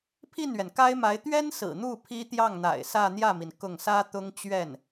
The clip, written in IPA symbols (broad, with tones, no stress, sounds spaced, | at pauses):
pʰ i˥˩ n ɥ ɛ˩ n k a˥ ɪ̯ m a˧˥ ɪ̯ t̪ ɥ ɛ˥ n s ɹ̩˨˩ n̪ u˥˩ pʰ i˥ t̪ j ɑ˥˩ ŋ n̪ a̰˨˩ ɪ̯ s ä˥˧ n̪ j ä˥˩ m i˩ n k ʊ˥˩ ŋ s ä˥ t̪ ʊ˥ ŋ t͡ɕ ɥ ɛ˥˩ n